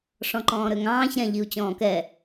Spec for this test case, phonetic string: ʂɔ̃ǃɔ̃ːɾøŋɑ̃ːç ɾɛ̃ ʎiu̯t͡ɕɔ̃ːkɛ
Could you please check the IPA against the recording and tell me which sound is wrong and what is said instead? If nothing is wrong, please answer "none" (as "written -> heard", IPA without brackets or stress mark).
none